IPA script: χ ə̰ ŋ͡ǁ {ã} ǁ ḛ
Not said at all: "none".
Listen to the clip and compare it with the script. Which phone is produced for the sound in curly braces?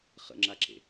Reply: a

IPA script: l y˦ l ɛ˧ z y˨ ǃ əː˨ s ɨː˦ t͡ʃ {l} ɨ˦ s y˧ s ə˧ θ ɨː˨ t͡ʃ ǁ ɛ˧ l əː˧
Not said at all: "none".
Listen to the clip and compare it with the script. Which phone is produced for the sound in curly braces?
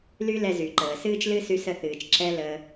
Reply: l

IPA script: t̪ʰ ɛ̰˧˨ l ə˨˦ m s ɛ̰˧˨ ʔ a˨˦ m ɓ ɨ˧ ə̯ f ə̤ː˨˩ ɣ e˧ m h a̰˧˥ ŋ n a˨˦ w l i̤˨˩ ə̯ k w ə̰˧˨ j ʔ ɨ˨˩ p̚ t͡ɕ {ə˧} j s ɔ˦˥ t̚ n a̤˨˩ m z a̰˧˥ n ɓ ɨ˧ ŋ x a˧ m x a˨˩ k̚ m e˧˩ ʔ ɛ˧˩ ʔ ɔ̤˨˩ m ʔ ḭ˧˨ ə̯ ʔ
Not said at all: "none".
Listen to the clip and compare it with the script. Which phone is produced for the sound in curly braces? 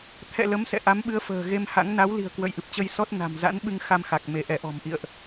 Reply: ə˧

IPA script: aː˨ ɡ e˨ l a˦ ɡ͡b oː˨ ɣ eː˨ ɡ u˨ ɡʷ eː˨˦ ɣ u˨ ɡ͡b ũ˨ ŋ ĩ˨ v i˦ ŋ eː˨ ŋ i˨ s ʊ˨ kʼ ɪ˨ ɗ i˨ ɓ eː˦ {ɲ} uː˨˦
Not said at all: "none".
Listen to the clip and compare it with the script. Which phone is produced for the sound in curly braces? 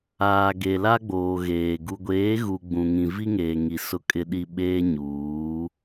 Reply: ɲ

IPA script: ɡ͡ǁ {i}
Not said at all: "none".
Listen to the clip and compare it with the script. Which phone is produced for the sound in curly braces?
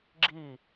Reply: i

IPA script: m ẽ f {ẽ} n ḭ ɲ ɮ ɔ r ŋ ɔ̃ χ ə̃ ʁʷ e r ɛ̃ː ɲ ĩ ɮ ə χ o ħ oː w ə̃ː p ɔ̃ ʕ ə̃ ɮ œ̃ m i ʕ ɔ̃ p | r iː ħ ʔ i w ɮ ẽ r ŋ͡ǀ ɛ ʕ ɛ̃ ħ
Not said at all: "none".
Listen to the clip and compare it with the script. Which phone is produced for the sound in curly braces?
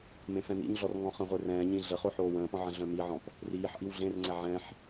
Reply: ɛ̃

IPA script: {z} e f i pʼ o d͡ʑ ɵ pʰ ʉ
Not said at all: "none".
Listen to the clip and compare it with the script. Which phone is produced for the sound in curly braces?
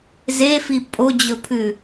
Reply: z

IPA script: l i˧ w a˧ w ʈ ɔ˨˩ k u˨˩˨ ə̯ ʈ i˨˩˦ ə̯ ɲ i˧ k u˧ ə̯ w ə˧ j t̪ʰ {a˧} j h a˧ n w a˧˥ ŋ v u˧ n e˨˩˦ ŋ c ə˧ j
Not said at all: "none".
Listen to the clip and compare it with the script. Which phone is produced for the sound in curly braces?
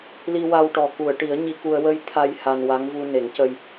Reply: a˧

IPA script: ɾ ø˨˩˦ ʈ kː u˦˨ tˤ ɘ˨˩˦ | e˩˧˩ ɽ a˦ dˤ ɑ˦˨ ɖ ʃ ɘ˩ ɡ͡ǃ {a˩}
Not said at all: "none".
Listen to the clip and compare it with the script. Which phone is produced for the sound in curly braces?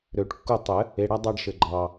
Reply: ɑ˩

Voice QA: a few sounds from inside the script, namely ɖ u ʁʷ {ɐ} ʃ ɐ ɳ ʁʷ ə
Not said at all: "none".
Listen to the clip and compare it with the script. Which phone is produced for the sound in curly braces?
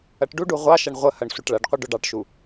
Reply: ɑ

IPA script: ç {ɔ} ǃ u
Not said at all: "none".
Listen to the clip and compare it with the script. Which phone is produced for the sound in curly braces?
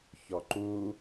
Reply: ɔ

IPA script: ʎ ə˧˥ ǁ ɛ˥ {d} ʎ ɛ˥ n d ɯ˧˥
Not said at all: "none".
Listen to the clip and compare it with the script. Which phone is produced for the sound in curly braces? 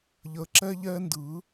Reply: none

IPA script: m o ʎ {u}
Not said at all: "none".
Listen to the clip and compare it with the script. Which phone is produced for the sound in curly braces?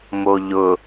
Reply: ʊ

